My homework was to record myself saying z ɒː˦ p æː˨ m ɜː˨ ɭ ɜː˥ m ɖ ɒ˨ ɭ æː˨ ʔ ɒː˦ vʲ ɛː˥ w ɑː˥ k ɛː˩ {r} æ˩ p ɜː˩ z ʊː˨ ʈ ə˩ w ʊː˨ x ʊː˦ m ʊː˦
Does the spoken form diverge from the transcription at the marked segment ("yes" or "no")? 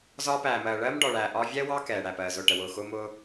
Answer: yes